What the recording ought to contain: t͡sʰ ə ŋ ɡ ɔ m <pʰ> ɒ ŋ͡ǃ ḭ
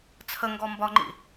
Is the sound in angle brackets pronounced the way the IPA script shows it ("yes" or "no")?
no